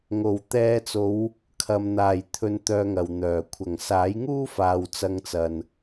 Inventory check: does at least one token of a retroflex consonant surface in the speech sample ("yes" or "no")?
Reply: no